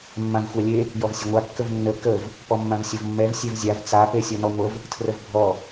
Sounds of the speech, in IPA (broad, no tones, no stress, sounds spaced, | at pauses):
mː ã v xʷ a lʲ e | j ɔ v sʲ ə ŋʷ a kː ə v nː ə k ə v | p ɔ mː ã v sʲ ʌ v mː ɛ v sʲ ɛ v zʲ a v t͡s a p e sʲ ɔ n ɔ ŋʷ ə v | tʰ r ə v bʱ ɔ